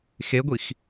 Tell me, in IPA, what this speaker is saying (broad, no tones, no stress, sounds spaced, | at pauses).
x e ɡʷ i x